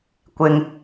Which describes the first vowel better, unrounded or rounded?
unrounded